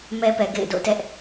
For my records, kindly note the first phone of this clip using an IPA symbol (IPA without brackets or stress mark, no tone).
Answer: m